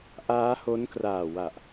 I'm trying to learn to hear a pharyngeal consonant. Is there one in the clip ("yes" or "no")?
no